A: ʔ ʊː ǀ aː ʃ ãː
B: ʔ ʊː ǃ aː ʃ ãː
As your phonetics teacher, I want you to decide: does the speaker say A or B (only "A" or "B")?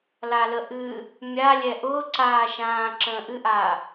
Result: A